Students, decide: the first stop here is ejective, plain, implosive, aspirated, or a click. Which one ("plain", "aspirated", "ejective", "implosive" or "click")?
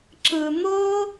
click